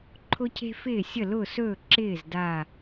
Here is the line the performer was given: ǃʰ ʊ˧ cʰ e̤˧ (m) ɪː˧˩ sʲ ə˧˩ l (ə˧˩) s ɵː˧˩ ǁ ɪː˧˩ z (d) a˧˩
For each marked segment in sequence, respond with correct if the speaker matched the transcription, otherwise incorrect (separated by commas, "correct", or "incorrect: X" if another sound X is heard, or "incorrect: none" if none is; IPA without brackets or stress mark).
incorrect: f, incorrect: ʊ˧˩, correct